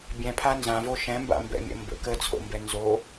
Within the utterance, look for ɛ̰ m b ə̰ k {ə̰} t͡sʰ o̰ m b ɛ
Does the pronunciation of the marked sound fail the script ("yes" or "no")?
yes